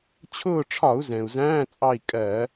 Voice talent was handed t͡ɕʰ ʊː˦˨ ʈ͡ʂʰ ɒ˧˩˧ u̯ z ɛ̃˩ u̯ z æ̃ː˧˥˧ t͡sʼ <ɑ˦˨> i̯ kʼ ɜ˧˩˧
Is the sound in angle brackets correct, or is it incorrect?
correct